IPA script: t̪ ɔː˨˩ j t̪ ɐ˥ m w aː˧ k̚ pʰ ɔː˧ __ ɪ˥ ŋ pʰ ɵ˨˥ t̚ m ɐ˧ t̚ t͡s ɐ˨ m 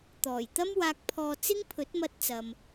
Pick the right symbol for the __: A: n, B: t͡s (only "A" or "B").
B